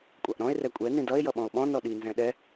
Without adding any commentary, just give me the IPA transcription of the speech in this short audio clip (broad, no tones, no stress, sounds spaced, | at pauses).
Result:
kʷʼ ɑ ʔ ɾ ɔ̃ e̯ r ɛ kʷʼ ɛ n ĩ d ʌ e̯ j ʌ ɓ ɔ̃ o̯ ɓ ɔ̃ n ɔ ɗ i n z ɛ̃ ɗ ɛ